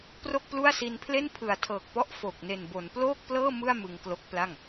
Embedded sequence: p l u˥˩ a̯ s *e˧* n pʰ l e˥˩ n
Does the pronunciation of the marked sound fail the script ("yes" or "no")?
yes